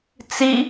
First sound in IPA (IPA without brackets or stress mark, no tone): t͡s